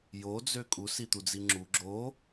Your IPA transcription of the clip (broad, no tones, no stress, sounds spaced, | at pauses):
j o d͡z ø kʼ u s i t̪ u d͡z i ŋ͡ǁ u ɡ͡ǁ o